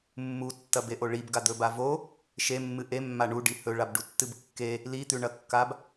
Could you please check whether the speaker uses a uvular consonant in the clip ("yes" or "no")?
no